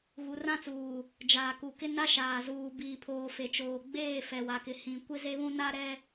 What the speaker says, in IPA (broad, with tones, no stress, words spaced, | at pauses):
ɣu˨rã˦t͡suː˨ | d͡ʒaː˨ku˨kɪ˦ na˦ʃaː˨zuː˨ biː˨pʰoː˨ fe˨t͡ʃoː˨ɡ͡beː˦˨ fɛ˨wa˨kɪ˨ hĩ˨ kʷɪ˦ze˦βũ˦ na˦ɾɛ˦